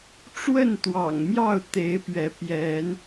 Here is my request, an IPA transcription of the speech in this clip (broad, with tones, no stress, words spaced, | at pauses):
ʈ͡ʂwə˥˨nt̪wɑ̰˨˩ŋmjɑ˥˨ʊ̯ t̪e˨˦ɪ̯pɥɛ˨˦ pjɛ˨˦n